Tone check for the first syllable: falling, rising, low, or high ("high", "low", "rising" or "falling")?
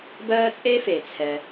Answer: high